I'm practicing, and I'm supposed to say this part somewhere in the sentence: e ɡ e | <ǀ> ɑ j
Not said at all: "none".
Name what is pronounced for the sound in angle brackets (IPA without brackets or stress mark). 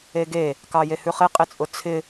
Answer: k